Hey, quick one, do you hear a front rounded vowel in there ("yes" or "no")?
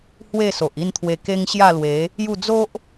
no